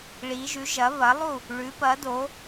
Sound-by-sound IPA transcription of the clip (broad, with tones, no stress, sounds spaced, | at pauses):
ɭ i˩˧ ʒ ʉ˩˧ ʒ ɐ˩˧ β ɐ˩˧ lˠ u˧˩ | ɭ ʉ˩˧ p ɐ˩˧ d o˩˧